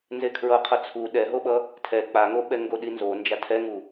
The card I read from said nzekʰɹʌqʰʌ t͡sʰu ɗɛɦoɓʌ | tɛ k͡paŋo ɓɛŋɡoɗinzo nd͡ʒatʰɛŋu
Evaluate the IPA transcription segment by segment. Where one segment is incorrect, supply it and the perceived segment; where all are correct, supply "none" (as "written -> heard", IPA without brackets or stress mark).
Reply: t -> tʰ